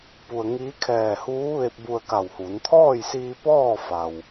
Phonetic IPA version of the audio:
p u˧ ə̯ ŋ iː˧˥ kʰ ɛː˧˩ h uː˧˥ ʋ e˧ p̚ b u˧ ə̯ k a˧˩ w h uː˩˧ n t̪ʰ ɔː˥˨ j s iː˧ p ɔː˥˨ f a˩ w

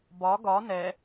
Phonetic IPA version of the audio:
b ɒ ɡ ɒ n ɛ

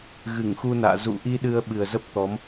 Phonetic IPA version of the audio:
ɣ ɨ˧˩ ŋ x u˧ n a̰ː˧˨ z ṵ˧˨ ʔ i˧ ɗ ɨ˧ ə̯ ɓ ɨ˨˩ ə̯ z ə˦˥ p̚ t̪ ɔ˨˦ m

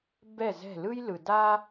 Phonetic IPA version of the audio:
b ɛ˥˩ z ɛ̤˥˩ l ɯ˥ j l ɯ˨ d a˥

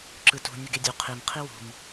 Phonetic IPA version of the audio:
ǁ ɯ t ṳ nʲ ɯ ɡ e dʲ u qʰ i m qʰ i w ṳ m

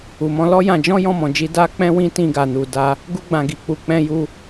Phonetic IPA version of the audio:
u˨ m ɔ̃˧ l ɔ˦ j ã˧ d͡ʒ ɔ̃˦ j ɔ̃˦˨ m ɔ̃˨ d͡ʒ i˧ d a˧ k͡p ɛ̃˧ w ĩ˧ t ĩ˧ ɡ a˨ n u˨ d a˧ | ɡ u˦ ɡ͡b ã˧ ɡ i˨ k͡p u˧ k͡p ɛ̃˦ j u˦

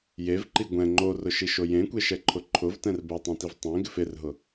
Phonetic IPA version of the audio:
j e v ǃ i ɡʷ ɛ̃ ŋ͡ǃ o r ʊ ʃ i ʃ o j ẽ kʷ e ʃ ɛ ǃʰ ʊ ǃʰ ʊ v t ɛ̃ r b ɛ tˤ ẽ t i v tˤ ẽ ɡ ɪ f ɪ r ɦ ʊ

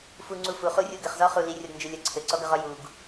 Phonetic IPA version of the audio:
f u ŋ͡ǀ u f u χ u rʲ u ɡ ɘ χ z ɔ χ u l i rʲ ɔ ɡ n d͡ʒ ɘ lʲ ʌ ǀʰ ɘ ǀ ɔ ɡ ʌ ʁ ɔ j u ɡ

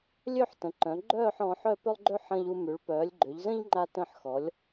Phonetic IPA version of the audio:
lʲ ø˥˧ ħ t ə̃˩˧ ǃ œ̃˩˧ ɡ͡ǃ œː˥˧ ħ ɔ̃˩˧ ħ œ˥˧ p ʏ˥ lˠ ɡ͡ǃ ø˥ ħ ə̃˧ ʎ u˧ m y˩˧ ɭ p œː˩˧ lʲ ɡ͡ǃ ʏ˩˧ ʎ z ə̃˥ ʎ ŋ͡ǃ a˧ t ə̃˧˩ ħ x ɔ˩˧ lʲ

